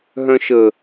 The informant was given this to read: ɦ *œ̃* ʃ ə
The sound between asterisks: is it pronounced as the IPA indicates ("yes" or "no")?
yes